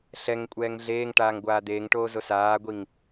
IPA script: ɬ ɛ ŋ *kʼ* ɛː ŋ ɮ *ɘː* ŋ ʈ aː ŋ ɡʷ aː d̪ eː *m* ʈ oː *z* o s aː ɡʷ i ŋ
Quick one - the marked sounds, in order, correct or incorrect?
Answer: incorrect: kʷʼ, incorrect: eː, incorrect: ŋ, correct

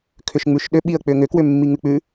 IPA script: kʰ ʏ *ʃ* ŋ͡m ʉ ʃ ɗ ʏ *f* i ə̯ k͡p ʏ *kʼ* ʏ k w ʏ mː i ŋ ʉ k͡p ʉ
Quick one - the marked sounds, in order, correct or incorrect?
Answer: correct, incorrect: ɓ, incorrect: ŋ

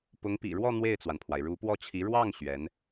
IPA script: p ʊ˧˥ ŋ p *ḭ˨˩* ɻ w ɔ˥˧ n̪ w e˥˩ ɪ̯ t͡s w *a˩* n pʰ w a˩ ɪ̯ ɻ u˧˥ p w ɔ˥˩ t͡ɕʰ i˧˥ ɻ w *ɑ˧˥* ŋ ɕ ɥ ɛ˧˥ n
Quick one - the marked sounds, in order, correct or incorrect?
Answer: correct, correct, incorrect: ɑ˥˩

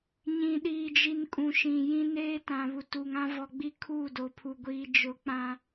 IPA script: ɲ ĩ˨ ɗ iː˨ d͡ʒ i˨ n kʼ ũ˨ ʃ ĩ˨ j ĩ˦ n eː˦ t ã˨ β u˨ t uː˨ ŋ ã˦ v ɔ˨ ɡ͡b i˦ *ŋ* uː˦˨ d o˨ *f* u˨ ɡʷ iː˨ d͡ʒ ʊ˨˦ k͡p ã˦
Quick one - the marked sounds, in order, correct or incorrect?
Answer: incorrect: kʰ, incorrect: pʰ

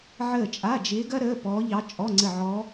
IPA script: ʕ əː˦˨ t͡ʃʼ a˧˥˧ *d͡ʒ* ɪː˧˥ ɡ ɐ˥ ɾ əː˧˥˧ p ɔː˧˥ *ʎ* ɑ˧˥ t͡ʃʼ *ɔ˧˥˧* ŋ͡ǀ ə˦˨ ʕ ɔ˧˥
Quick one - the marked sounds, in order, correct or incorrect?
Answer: correct, correct, correct

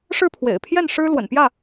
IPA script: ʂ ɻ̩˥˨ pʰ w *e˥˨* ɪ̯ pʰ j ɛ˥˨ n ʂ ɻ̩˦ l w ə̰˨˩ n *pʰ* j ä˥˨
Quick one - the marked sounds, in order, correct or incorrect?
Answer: incorrect: ḛ˨˩, incorrect: p

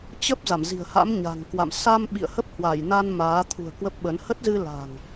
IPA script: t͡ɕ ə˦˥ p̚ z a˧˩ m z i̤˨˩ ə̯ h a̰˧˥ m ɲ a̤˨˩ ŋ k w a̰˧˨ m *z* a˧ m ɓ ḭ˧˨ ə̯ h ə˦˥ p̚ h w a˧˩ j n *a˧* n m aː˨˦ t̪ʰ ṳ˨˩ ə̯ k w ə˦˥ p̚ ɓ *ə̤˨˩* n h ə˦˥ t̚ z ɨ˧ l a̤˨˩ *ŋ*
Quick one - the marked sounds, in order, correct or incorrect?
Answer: incorrect: s, correct, incorrect: ə˨˦, correct

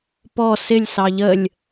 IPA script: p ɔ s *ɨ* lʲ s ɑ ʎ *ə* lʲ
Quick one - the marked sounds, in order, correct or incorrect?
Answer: incorrect: ɪ, correct

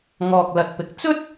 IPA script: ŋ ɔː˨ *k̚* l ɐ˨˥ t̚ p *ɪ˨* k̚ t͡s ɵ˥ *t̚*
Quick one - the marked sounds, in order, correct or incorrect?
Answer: correct, correct, correct

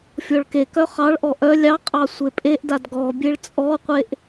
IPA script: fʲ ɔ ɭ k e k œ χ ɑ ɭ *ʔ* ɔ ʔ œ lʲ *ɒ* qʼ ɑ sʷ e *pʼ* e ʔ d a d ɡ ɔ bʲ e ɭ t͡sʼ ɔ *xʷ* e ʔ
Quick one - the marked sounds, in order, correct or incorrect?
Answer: correct, incorrect: ɑ, correct, incorrect: qʷ

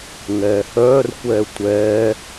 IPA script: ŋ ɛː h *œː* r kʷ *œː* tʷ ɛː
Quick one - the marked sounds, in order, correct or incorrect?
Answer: correct, incorrect: ɛː

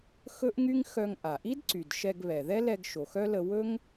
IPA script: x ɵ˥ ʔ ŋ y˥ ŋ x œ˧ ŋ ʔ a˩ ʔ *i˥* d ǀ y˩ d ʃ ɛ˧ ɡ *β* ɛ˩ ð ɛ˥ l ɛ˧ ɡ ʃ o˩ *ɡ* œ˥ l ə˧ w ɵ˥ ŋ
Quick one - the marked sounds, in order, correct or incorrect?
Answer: correct, correct, incorrect: x

